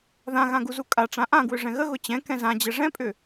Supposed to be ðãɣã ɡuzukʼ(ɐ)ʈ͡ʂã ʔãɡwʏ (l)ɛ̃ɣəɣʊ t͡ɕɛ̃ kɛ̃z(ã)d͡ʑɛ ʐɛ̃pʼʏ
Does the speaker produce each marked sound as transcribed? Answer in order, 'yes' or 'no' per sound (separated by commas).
no, no, yes